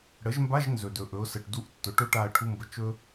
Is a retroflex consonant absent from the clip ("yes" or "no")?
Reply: no